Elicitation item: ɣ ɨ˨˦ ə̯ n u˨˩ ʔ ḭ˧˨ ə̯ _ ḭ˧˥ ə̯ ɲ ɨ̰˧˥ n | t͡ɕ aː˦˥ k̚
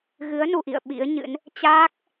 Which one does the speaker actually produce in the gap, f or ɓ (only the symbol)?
ɓ